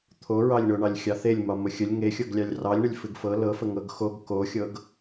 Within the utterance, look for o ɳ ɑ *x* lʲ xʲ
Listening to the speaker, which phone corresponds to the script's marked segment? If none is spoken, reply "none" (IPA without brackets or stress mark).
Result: none